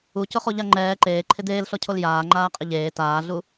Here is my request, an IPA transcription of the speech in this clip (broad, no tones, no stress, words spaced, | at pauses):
ucʊχo ʎaŋ͡ǃɛː ǃeː ǃʰɪd̪eːlɬɔcʰol jaː ŋ͡ǃaːqʼɪʎeː taːɮu